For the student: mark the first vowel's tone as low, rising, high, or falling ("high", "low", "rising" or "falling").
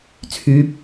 rising